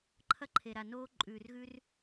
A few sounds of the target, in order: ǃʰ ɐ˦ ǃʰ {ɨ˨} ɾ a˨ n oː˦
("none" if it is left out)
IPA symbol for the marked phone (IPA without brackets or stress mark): e˨